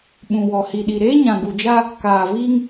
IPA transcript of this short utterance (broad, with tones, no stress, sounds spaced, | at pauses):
ɓ ũ˨ w ɔ˨ h i˨ ɗ i˨ ɾ eː˦ ɲ ã˨ ɡ u˨ d͡ʒ a˦ | k aː˨ v iː˦ ŋ